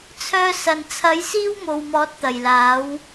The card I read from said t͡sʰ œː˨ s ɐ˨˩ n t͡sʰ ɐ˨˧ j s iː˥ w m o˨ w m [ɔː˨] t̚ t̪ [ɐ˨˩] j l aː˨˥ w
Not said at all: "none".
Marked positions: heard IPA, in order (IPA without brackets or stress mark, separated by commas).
ɔː˨˥, ɐ˨˩